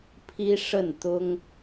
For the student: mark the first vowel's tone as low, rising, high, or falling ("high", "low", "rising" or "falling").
high